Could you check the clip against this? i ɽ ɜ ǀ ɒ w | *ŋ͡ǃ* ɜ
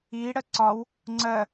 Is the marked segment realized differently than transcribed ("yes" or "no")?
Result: yes